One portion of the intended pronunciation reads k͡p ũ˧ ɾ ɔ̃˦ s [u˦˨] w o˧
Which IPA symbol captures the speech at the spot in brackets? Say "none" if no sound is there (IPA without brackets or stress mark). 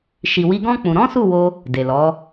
u˦˨